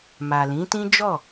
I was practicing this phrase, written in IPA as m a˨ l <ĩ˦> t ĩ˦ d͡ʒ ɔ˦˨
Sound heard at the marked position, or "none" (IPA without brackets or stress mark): ĩ˨˦